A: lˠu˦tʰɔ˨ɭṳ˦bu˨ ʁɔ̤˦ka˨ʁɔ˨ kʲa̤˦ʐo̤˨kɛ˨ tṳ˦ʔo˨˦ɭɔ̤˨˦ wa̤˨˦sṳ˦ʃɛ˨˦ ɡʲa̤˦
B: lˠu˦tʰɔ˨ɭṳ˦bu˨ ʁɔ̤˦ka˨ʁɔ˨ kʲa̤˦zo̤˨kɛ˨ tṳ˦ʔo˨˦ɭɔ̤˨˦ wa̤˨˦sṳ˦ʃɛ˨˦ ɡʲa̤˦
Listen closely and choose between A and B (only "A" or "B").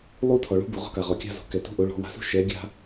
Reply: B